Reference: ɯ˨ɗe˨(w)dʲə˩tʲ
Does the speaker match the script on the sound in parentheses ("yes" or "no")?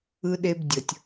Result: no